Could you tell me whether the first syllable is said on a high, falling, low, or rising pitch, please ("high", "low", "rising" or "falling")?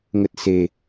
low